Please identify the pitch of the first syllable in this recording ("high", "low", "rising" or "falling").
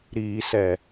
low